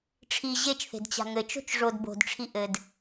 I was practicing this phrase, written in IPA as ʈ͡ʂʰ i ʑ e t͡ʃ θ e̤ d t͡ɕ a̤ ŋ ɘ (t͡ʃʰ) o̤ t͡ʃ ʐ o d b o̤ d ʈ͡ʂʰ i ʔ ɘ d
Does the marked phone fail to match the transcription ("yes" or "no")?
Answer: yes